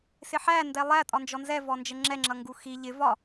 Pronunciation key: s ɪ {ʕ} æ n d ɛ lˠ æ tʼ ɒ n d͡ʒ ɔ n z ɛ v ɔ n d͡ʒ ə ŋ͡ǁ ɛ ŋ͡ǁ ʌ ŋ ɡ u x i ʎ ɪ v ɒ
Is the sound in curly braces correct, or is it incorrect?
incorrect